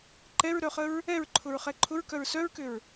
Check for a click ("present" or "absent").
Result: present